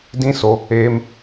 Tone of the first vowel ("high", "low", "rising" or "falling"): high